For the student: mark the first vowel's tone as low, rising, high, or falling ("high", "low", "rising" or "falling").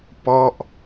falling